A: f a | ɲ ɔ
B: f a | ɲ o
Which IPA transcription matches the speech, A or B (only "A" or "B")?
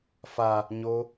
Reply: B